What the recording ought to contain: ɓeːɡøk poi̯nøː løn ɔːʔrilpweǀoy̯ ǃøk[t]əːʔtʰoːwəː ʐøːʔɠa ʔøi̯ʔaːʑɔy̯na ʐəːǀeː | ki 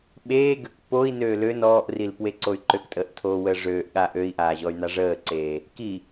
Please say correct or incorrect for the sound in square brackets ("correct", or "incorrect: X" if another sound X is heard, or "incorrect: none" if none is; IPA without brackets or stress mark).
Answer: incorrect: tʼ